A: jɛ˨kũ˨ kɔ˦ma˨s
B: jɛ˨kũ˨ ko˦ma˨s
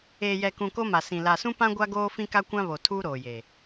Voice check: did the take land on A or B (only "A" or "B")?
B